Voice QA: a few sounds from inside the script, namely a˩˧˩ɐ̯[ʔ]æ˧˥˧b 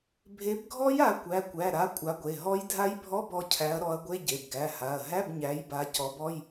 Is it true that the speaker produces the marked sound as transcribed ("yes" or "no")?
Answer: no